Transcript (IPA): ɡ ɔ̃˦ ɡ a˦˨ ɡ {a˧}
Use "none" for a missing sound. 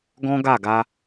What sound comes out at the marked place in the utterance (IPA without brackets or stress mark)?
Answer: a˧